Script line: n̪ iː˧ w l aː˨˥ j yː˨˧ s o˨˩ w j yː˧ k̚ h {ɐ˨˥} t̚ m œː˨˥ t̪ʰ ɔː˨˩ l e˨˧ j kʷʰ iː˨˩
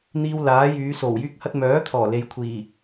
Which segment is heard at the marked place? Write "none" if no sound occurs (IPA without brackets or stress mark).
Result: ɐ˧